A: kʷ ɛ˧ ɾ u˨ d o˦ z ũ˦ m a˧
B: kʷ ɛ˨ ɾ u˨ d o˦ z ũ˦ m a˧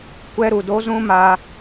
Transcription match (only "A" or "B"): A